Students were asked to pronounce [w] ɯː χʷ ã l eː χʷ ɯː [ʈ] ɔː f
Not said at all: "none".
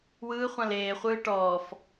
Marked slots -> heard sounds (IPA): w, ʈ

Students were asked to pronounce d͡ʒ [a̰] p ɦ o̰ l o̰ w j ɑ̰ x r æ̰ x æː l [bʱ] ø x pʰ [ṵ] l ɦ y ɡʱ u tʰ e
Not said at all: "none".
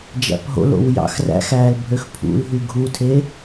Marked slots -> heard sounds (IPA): æ̰, bʱ, ṵ

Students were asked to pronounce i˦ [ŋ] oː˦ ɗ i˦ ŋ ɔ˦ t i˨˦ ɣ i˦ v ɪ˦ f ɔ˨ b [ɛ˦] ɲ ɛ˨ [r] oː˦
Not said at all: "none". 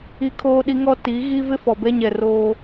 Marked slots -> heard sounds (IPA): kʰ, ɛ˦, r

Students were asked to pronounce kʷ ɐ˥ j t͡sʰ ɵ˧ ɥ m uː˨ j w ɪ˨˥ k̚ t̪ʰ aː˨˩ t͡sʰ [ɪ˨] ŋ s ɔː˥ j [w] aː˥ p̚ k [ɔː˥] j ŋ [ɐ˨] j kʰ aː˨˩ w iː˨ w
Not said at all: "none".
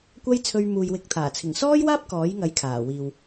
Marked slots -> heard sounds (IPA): ɪ˨˩, w, ɔː˨˥, ɐ˨˥

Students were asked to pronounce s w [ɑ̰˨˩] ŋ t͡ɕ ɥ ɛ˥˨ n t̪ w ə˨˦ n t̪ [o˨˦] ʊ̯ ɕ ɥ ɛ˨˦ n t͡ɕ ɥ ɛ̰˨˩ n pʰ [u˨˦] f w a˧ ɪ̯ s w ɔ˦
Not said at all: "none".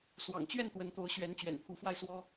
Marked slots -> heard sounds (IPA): ɑ̰˨˩, o˨˦, u˨˦

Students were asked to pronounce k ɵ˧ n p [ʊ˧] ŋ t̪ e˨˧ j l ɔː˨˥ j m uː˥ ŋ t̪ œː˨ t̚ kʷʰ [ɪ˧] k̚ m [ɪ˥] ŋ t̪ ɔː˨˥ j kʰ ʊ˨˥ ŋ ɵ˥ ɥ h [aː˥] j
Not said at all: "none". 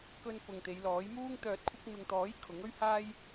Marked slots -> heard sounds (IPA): ʊ˨, ɪ˧, ɪ˨, aː˥

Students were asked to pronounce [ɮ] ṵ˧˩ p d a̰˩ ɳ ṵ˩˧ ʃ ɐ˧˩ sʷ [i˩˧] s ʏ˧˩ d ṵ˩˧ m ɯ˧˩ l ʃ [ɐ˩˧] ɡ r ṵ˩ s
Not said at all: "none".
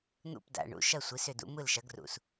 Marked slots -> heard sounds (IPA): n̪, i˩˧, ɐ˩˧

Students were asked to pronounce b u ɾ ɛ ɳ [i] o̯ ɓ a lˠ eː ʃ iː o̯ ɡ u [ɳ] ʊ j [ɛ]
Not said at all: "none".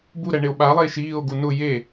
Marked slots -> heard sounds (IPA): e, n, e

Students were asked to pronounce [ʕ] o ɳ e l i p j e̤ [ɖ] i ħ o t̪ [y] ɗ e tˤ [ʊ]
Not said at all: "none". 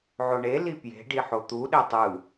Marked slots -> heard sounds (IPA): ʕ, ɖ, u, ɯ

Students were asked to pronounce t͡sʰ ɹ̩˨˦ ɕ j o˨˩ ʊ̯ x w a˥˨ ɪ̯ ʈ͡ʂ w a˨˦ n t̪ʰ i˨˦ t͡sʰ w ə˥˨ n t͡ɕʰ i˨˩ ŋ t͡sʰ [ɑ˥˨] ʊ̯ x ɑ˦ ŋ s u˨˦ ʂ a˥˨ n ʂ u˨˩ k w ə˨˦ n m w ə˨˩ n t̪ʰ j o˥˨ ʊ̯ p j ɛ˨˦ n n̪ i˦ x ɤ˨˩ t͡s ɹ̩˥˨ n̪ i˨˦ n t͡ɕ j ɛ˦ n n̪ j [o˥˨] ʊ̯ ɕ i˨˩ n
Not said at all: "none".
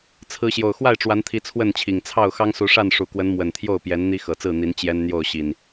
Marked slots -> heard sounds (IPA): ɑ˥˨, o˥˨

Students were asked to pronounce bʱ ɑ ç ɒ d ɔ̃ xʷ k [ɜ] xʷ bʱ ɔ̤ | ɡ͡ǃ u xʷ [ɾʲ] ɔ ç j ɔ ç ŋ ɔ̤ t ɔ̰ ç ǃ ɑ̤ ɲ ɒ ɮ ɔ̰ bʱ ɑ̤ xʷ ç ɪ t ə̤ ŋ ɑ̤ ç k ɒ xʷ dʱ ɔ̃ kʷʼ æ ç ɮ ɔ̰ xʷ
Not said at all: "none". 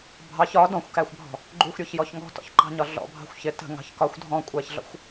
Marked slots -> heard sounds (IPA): æ, ɾʲ

